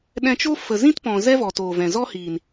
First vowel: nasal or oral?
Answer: nasal